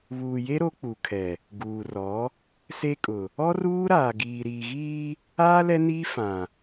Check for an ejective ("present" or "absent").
present